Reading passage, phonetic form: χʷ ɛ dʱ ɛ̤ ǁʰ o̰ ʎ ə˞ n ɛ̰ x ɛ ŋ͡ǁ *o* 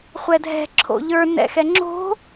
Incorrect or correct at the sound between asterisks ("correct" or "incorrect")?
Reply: incorrect